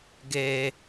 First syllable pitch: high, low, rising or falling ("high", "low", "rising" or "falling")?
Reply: low